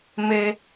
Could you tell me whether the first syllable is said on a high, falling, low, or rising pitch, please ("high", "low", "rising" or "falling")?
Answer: high